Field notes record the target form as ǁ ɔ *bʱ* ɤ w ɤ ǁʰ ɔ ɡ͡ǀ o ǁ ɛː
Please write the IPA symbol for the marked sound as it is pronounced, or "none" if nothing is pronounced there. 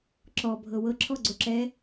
bʱ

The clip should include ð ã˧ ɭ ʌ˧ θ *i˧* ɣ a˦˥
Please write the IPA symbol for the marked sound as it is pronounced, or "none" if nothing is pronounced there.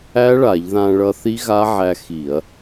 i˦˥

